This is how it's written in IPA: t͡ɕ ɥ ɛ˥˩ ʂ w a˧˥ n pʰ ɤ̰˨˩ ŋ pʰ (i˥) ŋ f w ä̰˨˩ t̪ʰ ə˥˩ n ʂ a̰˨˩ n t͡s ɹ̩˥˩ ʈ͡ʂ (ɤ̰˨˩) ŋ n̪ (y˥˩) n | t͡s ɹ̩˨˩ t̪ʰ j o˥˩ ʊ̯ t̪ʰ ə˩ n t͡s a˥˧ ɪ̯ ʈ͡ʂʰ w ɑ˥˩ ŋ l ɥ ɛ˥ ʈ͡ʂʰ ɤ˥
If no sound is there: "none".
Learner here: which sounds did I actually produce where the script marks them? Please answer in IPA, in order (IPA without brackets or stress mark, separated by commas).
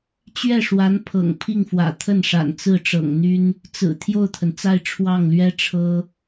i˥˩, ɤ̰˨˩, y˥